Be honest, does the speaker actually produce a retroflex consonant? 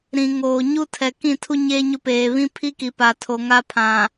no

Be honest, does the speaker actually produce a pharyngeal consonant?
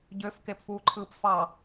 no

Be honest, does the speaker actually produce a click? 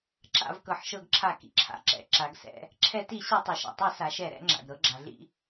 yes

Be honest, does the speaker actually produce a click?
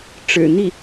no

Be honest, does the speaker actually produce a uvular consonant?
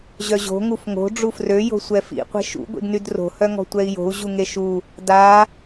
yes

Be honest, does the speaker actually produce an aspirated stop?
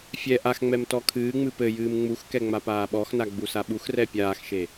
yes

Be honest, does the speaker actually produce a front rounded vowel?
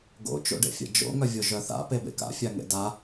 yes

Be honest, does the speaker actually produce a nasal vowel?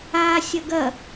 no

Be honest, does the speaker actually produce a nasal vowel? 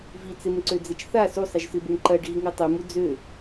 no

